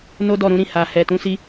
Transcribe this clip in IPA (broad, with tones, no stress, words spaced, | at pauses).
no˦dɔ˦˨ɾũ˨˦ɾĩ˦˨ ha˨hɛ˨ tũ˨˦si˧